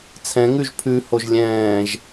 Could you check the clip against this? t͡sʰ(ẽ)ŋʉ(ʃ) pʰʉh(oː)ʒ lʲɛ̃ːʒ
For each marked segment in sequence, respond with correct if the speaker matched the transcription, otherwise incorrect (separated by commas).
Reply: incorrect, incorrect, incorrect